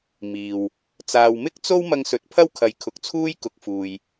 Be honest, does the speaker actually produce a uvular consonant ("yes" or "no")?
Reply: no